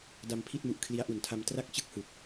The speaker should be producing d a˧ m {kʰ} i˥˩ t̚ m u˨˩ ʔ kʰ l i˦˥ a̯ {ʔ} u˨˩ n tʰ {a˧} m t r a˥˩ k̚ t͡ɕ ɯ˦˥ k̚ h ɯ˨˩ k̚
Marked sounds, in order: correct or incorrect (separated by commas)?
incorrect, correct, correct